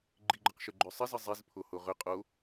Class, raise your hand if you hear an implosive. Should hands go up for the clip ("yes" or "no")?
no